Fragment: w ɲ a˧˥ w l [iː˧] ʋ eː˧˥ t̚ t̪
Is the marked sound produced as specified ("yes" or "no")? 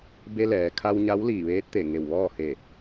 no